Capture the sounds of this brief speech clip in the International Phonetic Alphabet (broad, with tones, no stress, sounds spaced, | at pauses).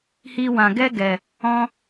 h iː˧ w ã˨ ɡ ɛ˦ ɡ ɛ˨ | ɔ̃˧